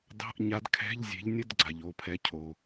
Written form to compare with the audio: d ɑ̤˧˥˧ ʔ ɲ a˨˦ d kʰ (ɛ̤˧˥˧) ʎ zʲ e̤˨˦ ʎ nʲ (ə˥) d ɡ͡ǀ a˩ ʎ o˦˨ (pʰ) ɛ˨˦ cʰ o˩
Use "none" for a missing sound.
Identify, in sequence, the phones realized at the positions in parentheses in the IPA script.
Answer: ɛ̤˧˥˧, ə˧˥˧, pʰ

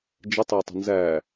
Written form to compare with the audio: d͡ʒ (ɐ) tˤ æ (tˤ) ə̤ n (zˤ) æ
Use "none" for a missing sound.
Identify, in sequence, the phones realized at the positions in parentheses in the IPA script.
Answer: ə, tˤ, z

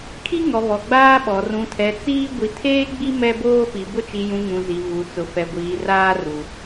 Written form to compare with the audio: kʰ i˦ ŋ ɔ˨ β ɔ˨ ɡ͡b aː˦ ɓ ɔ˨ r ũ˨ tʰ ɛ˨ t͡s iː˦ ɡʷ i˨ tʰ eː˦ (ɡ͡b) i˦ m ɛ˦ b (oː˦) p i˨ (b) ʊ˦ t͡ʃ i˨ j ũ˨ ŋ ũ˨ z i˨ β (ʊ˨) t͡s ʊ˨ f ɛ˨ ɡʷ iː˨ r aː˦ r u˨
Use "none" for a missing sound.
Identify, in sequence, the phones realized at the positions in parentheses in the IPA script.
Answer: ɡ͡b, oː˦, b, u˨

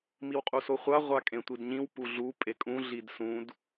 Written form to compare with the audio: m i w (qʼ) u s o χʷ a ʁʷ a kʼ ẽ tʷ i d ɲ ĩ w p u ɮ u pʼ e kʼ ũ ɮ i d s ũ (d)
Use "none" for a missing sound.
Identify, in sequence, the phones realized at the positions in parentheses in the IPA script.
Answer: qʼ, d

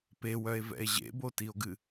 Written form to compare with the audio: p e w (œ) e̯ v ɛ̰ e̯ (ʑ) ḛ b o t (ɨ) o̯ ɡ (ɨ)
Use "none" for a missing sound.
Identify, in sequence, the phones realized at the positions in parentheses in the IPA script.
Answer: œ, ʑ, i, ɨ

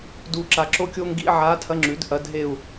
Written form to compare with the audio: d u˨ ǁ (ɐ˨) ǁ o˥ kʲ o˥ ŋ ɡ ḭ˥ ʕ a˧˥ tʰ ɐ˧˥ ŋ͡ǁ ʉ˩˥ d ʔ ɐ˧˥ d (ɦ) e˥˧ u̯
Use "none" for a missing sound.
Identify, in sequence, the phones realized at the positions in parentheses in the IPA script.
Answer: a˨, ɦ

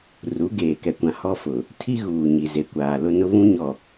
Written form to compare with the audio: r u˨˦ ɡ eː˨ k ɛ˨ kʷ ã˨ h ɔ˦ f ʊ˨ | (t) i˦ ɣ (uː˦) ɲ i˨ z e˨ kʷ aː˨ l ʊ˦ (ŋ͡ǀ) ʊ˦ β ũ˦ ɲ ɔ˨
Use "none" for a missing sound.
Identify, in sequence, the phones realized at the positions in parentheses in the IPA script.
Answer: tʰ, uː˨, n

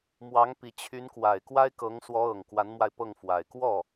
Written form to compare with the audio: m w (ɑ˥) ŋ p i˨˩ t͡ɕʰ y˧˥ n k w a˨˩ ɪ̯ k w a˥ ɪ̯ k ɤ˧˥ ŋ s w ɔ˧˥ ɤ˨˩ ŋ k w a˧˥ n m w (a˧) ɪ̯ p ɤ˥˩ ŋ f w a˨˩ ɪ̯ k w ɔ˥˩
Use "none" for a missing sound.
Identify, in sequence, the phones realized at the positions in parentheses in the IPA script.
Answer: ɑ˧˥, a˧

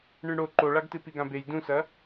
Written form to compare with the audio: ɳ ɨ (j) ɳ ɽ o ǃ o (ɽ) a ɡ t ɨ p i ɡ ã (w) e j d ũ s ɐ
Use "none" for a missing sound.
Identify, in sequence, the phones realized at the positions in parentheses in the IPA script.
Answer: none, ɭ, b

